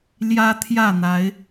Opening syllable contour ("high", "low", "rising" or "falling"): high